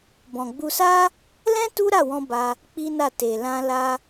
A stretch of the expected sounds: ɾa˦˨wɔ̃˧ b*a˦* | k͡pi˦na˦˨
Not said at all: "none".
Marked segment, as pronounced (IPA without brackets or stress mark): a˧